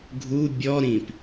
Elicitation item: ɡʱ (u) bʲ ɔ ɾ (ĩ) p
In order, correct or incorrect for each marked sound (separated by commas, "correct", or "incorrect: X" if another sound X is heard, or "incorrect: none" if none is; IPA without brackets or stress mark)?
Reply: correct, correct